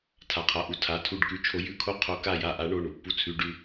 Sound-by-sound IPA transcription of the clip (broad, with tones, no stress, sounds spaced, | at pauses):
tʰ a˩˧˩ qʰ a˩˧˩ ʔ u˧˩ tʰ a˩˧˩ tʰ u˧˩ ɖ k ʉ˨˦ t͡ʃʰ o˨˦ j ʉ˨˦ kʰ o˨˦ qʰ o˨˦ k a˧˩ j a˧˩ ʔ a˨˦ ɳ o˩˧˩ ɳ u˧˩ pː u˧˩ t͡sʰ ʉ˩˧˩ ɖ ʉ˧˩